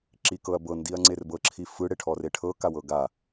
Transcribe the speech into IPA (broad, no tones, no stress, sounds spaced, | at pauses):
ǁ i k ɤ ɐ̯ b ɤ n d i ɐ̯ ŋ͡ǀ e r b ɤ ǁʰ i f ɯ ɽ e ʈʰ ɔ r e ʈʰ ɤ k a w ɤ ɡ a